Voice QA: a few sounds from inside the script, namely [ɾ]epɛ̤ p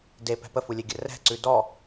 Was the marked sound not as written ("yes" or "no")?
yes